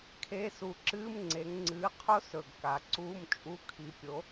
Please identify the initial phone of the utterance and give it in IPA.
kʰ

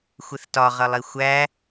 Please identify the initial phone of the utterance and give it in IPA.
xʷ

